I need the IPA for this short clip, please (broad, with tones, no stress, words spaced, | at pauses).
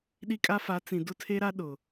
ɗi˦kʼa˦ fa˨˦t͡sĩ˨ dʊ˦tʰe˦ɾa˦ ɗʊ˨